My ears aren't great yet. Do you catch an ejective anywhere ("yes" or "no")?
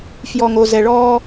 no